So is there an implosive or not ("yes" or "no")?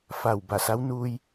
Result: no